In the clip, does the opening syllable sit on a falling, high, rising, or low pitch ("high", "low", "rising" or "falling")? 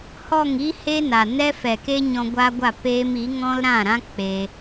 falling